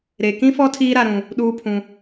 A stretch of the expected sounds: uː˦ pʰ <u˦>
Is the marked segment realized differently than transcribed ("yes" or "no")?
yes